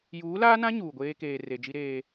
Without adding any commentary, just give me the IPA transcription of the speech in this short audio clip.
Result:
juː˨˦laː˦nã˦ ɲuː˨ɡʷeː˦ keː˨re˨d͡ʒi˦ɾeː˦

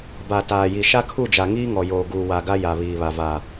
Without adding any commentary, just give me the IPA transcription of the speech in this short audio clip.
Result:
ba˨ taː˨ji˨ ʃa˦kʰu˦˨d͡ʒa˨ ŋiː˦ŋɔ˨joː˨ ɡuː˨wa˨ ɡa˦ja˨βiː˨βa˨ vaː˨

